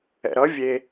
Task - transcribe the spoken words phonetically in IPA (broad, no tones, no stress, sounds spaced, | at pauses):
ɛ̰ ɾ ʌ vʲ e